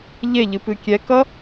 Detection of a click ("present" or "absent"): absent